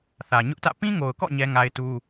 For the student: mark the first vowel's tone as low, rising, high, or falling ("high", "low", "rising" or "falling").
low